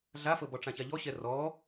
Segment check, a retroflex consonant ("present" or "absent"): present